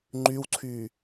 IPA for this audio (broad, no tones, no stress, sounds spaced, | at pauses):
ŋ͡ǃ y w ǀʰ y